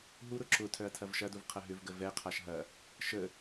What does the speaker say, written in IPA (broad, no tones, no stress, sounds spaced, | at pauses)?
ɦ u ɾ ʊ ǁ ʊ tʰ œ ɐ̯ tʰ ɐ v ʃ ɐ d u v qʰ ɐ ɦ ʏ v ɡ ə v ɛ qʰ a ʃ ɦ ɐ | ʃ ə